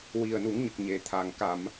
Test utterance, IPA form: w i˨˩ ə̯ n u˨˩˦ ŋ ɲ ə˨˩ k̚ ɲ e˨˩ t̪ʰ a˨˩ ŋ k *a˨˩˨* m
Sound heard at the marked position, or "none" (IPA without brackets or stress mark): a˨˩˨